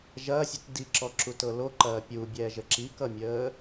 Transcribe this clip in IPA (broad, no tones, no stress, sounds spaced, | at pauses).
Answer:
ʒ ɐː sʲ ə t d i ǁ ɔ ǁ u t ɤ l o ǃ ɐː pʲ u bʲ ɛː ʒ ə ǁ i k ʌ mʲ əː